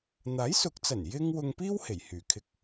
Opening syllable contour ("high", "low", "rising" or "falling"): rising